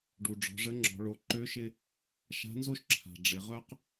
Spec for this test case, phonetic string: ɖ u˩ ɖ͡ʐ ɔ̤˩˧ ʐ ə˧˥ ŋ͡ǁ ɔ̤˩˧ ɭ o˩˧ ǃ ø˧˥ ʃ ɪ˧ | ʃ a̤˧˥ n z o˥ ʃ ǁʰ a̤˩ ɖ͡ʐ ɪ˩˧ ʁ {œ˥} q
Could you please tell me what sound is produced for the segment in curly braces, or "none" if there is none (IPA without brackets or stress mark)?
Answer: œ˥